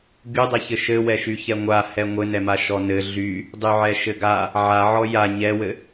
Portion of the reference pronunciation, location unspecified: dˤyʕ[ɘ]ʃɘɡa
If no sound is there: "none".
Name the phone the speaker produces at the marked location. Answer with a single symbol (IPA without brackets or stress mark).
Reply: ɛ